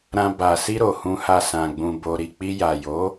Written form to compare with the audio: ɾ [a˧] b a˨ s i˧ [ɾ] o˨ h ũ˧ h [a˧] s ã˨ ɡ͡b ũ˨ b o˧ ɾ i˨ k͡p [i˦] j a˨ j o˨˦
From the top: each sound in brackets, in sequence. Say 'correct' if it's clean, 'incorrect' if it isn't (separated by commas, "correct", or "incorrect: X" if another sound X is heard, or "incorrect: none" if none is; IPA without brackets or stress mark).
incorrect: ã˧, correct, correct, incorrect: i˧